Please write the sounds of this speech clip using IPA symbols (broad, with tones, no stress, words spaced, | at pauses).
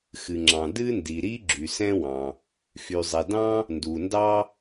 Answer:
xɨ˩ŋ͡ǁɑ̃˩ dɨ˥ndi˩ɾi˥ ɡ͡ǁy˩sɛ̃˥wɑ̃˩ | xy˩zˤɛ˩dɑ̃˥ | ndu˩ndɑ˥